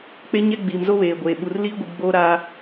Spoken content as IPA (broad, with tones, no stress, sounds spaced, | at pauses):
k͡p e˦ ɲ ɛ˦ ɡ͡b iː˨ m z o˦ β eː˨ ɡʷ eː˨ ɓ u˨ r l iː˦ ɡʷ i˨ ɡ͡b oː˦ ɾ a˦